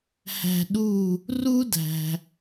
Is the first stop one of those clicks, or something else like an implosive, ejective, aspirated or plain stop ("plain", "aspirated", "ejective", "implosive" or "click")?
implosive